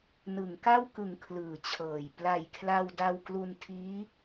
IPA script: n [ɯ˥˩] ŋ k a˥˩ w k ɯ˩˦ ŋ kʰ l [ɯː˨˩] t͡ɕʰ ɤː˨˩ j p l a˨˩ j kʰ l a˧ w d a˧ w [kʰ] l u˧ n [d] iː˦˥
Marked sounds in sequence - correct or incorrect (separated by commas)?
incorrect, incorrect, incorrect, incorrect